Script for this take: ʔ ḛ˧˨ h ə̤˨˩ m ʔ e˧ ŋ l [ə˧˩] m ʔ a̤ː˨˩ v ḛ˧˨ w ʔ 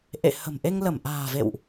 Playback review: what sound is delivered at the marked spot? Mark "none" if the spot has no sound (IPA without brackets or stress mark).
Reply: ə˧˩